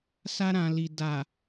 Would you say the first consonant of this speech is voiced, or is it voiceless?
voiceless